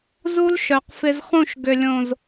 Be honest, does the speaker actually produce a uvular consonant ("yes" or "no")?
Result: yes